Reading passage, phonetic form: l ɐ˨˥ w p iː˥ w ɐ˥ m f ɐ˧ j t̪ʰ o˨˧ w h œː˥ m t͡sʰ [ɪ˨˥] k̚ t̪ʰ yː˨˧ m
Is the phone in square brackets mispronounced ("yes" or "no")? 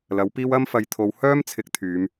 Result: no